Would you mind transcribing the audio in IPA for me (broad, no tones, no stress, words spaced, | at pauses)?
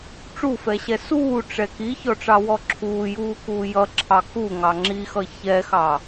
ʈ͡ʂufɛɕɛ suːʈ͡ʂɛ kiçɔʈ͡ʂɑwɔ ǁʰuːjuːkuː jʌǁʰɑ kuŋɑ ŋ͡ǁixʌ çɛxɑ